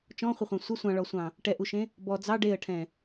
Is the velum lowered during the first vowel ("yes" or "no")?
yes